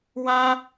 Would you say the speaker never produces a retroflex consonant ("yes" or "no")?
yes